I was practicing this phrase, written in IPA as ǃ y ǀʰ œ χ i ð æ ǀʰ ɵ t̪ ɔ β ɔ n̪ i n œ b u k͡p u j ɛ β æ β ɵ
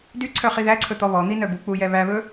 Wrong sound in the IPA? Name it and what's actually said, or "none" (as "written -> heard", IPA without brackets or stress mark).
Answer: ǃ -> d